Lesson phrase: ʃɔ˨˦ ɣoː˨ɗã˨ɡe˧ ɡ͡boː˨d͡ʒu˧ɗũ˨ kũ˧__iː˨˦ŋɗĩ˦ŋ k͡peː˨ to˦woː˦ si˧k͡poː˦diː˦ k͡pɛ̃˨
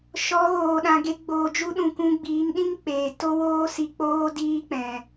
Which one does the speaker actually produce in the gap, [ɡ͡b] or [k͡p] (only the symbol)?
ɡ͡b